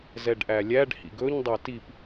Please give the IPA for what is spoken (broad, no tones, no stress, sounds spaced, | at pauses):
z ɛ ɖ ʔ æ lʲ æ ɖ h ḭ ɡ ɵ ɲ dˤ æ t i p